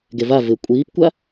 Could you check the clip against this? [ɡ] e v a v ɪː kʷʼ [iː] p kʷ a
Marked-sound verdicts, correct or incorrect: correct, correct

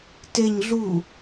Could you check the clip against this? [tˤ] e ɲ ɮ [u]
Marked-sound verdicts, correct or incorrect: incorrect: t, correct

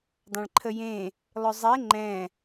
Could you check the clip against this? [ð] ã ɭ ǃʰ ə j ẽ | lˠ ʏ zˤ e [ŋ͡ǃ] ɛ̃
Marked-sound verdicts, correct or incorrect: incorrect: dˤ, correct

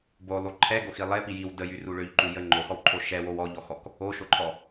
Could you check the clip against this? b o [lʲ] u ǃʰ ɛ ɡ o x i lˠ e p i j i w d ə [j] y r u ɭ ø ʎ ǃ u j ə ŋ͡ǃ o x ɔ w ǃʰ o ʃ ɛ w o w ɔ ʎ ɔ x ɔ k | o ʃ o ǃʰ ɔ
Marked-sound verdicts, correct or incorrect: incorrect: lˠ, correct

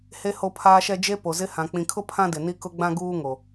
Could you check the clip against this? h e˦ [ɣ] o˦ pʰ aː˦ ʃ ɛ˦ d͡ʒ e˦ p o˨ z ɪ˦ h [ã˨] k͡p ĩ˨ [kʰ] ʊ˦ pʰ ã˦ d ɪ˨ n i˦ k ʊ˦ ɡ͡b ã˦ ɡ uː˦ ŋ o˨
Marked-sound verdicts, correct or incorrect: incorrect: h, correct, correct

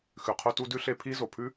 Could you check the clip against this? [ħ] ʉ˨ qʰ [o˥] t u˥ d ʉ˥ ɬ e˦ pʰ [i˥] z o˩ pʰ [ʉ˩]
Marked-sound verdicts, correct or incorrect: incorrect: x, correct, correct, incorrect: ʉ˥

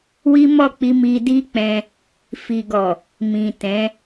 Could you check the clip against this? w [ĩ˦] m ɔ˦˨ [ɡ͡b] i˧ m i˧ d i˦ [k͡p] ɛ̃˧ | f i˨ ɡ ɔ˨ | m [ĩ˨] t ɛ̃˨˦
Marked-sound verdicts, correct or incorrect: incorrect: i˦, incorrect: k͡p, correct, correct

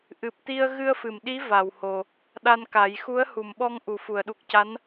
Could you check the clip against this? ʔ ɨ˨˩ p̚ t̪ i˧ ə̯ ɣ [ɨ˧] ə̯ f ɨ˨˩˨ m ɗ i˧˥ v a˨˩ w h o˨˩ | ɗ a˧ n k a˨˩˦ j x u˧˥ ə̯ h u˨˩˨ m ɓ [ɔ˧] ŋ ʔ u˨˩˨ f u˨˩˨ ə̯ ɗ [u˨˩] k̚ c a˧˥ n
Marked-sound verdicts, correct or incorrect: correct, correct, correct

